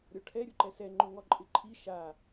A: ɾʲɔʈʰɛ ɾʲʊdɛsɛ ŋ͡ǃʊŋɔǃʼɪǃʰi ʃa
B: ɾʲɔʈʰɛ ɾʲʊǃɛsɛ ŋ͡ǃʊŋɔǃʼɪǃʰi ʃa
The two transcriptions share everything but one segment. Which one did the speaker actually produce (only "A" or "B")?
B